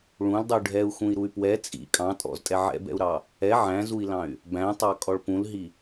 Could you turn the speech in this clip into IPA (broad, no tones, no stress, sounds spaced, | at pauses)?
ɭ ũ l dˤ u ɖʱ ɛ u̯ x ũ i̯ ɾ u y̯ p w ɛ t͡sʼ ḭ kʼ ɑ̃ tʼ ɔ̰ z tʼ ɛ ʕ ɛ̰ b ɛ̰ u̯ ɾ ɑ | ɛ ʕ æ̃ z u i̯ l ɑ̃ y̯ | b æ̃ tˤ ɑ kʼ ɔ ɭ p ũ l ɦ i